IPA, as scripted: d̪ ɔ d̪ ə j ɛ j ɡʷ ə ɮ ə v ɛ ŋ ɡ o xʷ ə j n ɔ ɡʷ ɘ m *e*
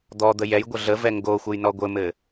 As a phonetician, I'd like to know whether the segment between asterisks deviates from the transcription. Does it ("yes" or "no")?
yes